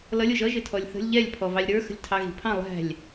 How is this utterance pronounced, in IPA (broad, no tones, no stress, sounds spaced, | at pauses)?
l ʌ lʲ ʊ ʒ ʌ ʒ ɪ tʰ ɔ lʲ θ ə̤ lʲ ʎ ɛ lʲ pʰ ɔ v ɑ lʲ ɾ ə˞ x ə̤ lʲ tʰ ɑ ɣ i̤ pʰ ɑ̃ lˠ æ̤ lʲ